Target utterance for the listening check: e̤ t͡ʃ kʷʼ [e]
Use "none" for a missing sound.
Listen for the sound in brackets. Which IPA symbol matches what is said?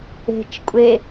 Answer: e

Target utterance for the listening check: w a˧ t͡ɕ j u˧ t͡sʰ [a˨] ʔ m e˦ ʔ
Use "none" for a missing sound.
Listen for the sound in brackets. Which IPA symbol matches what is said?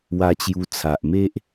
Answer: a˨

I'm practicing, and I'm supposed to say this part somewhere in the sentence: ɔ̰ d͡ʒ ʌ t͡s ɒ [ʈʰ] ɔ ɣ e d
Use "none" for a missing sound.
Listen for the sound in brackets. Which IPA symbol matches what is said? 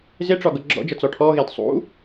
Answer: ʈʰ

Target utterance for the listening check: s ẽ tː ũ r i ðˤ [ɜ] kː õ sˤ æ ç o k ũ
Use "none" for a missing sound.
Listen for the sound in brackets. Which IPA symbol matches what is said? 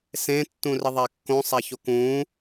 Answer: æ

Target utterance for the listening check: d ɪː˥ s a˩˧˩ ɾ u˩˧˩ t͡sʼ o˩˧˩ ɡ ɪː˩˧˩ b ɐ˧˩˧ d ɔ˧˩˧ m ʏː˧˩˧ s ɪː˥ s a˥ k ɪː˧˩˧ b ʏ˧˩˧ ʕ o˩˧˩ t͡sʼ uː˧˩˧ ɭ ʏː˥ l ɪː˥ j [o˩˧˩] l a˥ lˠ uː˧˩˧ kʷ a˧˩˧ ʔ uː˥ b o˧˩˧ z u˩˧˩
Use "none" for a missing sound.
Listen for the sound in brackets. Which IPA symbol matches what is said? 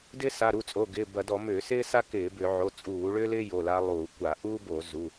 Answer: o˩˧˩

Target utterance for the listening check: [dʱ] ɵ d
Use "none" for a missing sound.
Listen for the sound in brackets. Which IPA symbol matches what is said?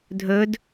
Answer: dʱ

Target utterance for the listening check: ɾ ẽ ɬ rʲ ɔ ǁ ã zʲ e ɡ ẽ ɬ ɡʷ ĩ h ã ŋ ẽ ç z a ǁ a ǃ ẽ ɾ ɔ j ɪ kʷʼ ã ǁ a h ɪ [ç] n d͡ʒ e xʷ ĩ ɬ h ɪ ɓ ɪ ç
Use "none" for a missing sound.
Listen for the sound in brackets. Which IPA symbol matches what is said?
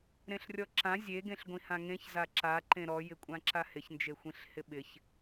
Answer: ç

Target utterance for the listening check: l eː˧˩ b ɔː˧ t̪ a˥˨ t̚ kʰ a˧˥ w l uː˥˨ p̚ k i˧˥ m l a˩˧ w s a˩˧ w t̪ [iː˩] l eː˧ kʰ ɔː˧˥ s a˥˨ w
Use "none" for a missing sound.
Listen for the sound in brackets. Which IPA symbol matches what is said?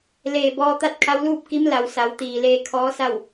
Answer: iː˩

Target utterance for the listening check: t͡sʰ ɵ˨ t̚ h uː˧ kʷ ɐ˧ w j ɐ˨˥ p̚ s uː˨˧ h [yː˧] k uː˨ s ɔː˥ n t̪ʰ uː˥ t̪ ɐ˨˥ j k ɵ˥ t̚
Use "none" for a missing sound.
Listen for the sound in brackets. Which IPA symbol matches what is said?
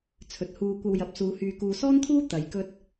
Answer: yː˨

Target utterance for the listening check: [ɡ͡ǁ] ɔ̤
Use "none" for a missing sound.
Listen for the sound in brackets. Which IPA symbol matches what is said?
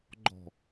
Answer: ɡ͡ǃ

